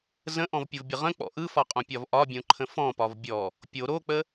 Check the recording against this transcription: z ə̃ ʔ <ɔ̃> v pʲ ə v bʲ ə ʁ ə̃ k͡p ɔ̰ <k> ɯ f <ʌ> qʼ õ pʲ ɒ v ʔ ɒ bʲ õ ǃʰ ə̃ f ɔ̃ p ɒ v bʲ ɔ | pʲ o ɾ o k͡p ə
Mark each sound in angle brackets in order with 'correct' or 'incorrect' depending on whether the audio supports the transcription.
correct, incorrect: ʔ, incorrect: ɒ

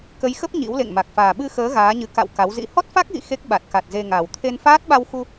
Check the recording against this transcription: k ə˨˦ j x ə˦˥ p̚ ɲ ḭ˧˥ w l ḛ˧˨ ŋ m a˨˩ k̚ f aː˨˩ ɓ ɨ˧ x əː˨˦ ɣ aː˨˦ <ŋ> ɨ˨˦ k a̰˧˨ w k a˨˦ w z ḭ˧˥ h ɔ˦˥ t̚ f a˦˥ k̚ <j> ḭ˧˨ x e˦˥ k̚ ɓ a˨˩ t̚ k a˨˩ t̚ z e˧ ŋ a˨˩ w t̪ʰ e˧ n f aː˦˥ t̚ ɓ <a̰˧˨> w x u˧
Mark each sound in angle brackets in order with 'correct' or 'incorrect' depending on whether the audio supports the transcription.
incorrect: ɲ, incorrect: ɣ, incorrect: a˧

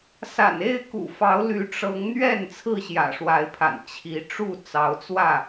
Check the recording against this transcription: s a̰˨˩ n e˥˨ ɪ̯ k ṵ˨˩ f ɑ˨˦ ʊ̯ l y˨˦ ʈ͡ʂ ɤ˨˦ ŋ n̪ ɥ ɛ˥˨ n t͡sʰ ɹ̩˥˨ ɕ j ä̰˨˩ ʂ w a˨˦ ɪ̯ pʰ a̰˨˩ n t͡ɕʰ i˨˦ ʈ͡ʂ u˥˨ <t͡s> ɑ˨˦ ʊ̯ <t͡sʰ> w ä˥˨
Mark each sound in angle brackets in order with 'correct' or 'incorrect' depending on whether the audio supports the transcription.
correct, incorrect: t͡s

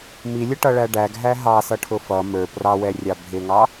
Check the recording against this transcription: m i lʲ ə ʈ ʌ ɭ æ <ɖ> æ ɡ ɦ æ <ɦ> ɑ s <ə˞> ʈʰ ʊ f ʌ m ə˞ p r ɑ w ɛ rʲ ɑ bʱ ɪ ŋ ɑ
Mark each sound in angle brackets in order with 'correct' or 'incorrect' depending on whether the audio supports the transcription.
correct, correct, incorrect: ʌ

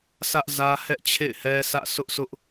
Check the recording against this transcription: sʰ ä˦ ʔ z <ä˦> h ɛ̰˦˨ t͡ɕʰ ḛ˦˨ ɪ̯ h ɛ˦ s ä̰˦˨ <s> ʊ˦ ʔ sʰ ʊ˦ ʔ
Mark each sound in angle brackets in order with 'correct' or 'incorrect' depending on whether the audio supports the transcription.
correct, correct

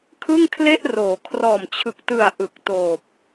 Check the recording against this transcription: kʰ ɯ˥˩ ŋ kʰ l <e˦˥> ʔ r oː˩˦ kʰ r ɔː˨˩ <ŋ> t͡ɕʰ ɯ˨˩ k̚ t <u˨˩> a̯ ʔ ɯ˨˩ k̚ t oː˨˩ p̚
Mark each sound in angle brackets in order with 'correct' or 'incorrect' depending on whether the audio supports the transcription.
incorrect: e˥˩, incorrect: m, incorrect: ɯ˨˩

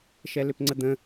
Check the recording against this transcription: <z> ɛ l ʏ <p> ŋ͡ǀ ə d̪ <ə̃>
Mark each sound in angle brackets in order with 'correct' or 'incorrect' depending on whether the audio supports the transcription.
incorrect: ʃ, correct, correct

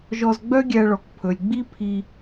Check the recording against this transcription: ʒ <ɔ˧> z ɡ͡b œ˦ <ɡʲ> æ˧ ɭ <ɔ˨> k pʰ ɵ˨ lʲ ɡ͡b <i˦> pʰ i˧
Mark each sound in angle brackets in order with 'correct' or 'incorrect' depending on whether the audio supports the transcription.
correct, correct, correct, correct

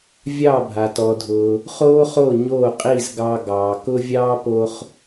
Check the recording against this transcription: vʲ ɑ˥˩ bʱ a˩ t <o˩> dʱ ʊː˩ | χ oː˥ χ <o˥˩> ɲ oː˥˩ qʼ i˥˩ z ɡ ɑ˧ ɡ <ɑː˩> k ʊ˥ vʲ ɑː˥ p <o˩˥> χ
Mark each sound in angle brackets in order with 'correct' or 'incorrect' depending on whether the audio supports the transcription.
incorrect: ɔ˩, correct, correct, incorrect: o˧

